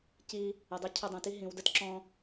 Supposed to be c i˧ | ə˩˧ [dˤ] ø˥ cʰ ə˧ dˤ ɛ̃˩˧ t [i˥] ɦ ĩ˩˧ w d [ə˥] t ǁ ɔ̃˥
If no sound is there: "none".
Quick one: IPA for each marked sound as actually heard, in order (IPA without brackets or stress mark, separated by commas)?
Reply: dˤ, i˥, ə˥